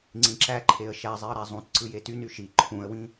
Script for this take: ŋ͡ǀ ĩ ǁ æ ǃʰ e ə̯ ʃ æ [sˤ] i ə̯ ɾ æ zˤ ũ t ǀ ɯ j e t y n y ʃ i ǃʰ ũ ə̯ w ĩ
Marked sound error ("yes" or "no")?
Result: yes